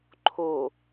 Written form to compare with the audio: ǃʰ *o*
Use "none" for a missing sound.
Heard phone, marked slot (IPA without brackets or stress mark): o